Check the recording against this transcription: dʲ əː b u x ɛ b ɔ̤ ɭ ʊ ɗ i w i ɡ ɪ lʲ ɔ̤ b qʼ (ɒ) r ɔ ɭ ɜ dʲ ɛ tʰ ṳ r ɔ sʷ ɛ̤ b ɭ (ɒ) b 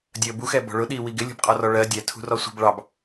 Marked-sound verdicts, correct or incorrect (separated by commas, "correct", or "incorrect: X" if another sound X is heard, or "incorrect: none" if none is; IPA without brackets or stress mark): correct, incorrect: ɑ